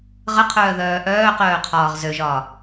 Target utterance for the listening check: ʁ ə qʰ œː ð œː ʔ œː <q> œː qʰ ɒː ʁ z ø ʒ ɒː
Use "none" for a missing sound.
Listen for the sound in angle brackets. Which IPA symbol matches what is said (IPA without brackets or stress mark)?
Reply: q